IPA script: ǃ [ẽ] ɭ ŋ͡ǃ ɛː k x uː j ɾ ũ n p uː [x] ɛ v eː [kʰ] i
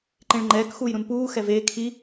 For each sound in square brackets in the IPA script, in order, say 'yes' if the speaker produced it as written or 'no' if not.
yes, yes, yes

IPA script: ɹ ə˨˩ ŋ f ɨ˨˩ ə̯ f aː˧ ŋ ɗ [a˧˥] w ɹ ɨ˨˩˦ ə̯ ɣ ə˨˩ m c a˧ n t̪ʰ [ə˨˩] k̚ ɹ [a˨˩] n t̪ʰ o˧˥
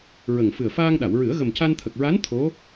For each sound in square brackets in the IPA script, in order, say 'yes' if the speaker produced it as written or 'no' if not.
no, yes, no

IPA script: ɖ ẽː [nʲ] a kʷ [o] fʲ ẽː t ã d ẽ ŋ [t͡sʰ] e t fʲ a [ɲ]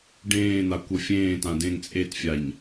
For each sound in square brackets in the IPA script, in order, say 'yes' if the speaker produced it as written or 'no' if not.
no, no, no, yes

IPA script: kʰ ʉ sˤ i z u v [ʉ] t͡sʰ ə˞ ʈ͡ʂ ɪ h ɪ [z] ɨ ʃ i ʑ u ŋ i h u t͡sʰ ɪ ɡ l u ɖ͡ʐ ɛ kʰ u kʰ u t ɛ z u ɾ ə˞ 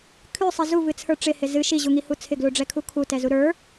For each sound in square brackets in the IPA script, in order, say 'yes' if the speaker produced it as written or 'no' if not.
no, yes

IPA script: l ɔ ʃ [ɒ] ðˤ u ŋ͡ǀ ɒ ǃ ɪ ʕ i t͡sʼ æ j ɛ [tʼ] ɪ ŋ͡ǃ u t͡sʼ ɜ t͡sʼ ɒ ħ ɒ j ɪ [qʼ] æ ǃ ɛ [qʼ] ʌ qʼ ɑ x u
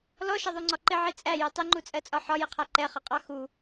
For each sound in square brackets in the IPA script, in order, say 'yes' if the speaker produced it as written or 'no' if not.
no, no, no, no

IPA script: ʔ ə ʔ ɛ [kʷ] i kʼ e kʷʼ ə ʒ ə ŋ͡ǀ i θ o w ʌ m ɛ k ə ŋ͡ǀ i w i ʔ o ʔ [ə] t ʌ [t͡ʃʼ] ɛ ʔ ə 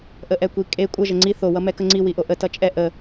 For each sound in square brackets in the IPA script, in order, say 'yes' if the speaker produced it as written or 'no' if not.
yes, yes, yes

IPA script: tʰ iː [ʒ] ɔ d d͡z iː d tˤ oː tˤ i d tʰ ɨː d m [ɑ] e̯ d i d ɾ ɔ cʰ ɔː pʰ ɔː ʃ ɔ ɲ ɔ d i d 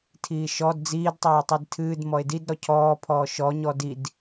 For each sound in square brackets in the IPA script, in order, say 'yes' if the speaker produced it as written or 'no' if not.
no, no

